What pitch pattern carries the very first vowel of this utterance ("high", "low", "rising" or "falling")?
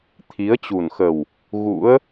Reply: rising